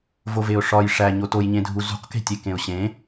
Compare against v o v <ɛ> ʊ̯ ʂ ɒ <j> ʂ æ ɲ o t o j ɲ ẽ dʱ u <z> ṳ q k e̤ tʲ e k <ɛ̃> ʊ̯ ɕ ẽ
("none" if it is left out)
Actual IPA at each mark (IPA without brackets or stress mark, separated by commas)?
e, j, z, ẽ